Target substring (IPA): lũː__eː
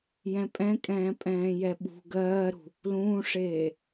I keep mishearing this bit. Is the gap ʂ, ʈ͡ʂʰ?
ʂ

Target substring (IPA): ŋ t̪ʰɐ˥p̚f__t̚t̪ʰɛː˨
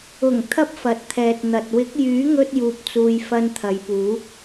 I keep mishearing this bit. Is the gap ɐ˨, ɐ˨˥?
ɐ˨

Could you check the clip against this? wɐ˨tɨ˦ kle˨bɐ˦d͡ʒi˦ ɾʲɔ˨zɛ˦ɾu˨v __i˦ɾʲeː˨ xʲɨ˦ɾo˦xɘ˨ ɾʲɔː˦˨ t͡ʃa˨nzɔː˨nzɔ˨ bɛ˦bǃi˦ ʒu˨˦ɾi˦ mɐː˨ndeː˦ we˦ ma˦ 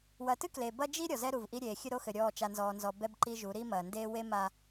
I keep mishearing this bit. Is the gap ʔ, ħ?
ʔ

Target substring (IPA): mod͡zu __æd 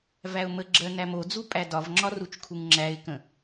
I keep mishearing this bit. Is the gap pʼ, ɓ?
pʼ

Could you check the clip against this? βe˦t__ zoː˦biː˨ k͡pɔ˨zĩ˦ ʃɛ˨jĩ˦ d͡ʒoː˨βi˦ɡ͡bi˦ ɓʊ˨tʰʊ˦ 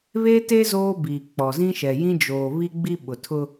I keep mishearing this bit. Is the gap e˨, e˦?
e˦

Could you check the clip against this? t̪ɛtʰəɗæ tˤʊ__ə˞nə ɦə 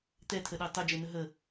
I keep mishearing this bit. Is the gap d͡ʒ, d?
d͡ʒ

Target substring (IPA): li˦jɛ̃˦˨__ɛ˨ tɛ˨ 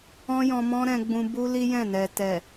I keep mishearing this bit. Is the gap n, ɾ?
n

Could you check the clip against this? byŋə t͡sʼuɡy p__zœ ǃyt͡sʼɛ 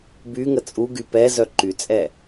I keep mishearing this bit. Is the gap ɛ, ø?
ɛ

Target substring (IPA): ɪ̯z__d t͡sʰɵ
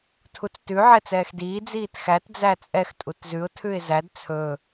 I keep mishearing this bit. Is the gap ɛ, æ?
æ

